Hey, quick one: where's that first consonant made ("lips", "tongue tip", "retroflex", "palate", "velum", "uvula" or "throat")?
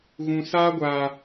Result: velum